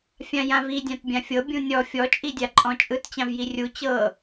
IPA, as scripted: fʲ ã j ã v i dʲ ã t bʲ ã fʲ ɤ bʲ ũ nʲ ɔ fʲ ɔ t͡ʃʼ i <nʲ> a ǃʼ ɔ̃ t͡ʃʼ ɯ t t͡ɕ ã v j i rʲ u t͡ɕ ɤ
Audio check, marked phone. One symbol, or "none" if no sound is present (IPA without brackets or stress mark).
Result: dʲ